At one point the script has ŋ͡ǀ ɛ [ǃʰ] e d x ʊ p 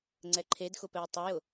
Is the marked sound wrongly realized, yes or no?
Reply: no